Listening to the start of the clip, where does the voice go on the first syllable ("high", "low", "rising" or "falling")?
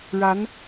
rising